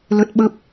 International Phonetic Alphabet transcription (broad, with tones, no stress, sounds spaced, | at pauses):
l ə˦˥ t̚ ɓ ə˦˥ p̚